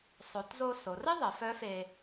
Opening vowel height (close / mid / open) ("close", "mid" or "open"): mid